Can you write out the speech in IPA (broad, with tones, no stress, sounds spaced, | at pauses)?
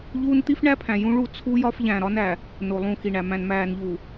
ʎ uː˦ n t̪ i˦ f ɳ æ˦ pʰ æ̃˨ j ũ˦ ɭ u˦˨ t͡sʰ u˦ j ɒ˦ f ʎ æ̃˨ ɾ ɒ˦ n æ˨ | n o˨ lˠ ũ˦˨ x i˨ ɳ æ˨ m æ̃˨ n m æː˨ n ʎ uː˨